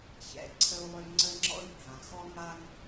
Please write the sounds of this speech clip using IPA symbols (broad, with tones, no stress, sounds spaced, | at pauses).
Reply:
ç ɛ̰˩ ǀʰ ə˧ u̯ lˠ ø˧ ŋ͡ǀ ə˥ ŋ͡ǁ ɔ̰˥ i̯ bʱ ã˩ x ɔ˥ ŋ a˥ ŋ